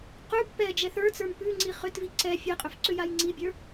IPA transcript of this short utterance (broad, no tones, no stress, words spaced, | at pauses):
qʉb pɛ d͡ʒɛθə˞t͡sə˞m pʉ ŋ͡ǀiχʏtvi ǀɛ fʲɛqʼʏf ǀʏjajŋ͡ǀibʲə˞